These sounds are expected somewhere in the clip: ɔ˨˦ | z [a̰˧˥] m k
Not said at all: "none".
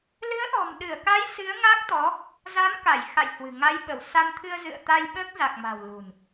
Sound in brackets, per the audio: a˨˦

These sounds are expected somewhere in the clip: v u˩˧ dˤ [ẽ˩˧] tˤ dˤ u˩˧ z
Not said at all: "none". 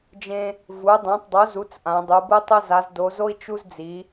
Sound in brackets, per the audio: ẽ˩˧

